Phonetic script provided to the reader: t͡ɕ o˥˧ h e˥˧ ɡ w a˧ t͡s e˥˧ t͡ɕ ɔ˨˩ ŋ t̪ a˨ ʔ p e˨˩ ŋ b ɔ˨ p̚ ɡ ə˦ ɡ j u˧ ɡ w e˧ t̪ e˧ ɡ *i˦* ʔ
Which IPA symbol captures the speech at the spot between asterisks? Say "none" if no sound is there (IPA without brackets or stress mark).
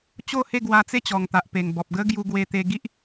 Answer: i˦